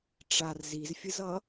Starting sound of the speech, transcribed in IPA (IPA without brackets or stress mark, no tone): ʈ͡ʂ